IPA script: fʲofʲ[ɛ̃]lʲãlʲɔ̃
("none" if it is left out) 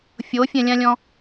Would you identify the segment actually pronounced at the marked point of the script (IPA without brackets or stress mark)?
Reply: ɛ̃